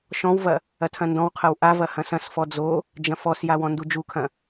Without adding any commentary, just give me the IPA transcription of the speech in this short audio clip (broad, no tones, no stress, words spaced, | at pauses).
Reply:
ʃɔ̃wvɐ | ɐtʰɐ̃ndɔ̃wqʰɐw ʔavɐ hɐ̃sɐ̃sfɔ d͡zo | d͡ʒɐ̃fɔsja wɔ̃ndud͡ʒukʰɐ̃